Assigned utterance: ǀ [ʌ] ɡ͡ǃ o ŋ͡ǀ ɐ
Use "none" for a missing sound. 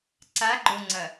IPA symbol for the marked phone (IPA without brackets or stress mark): a